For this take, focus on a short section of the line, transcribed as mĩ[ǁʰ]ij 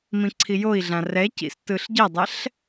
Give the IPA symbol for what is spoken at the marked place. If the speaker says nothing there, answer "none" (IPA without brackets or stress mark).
ǀʰ